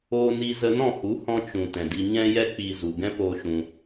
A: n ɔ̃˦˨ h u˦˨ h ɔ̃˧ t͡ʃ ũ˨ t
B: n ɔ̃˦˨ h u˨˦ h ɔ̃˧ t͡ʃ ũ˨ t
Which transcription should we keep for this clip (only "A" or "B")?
B